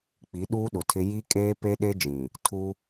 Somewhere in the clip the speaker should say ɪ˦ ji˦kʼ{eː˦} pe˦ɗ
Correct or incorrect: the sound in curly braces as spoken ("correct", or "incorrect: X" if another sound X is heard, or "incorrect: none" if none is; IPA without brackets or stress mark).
correct